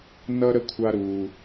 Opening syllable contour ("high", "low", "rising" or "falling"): high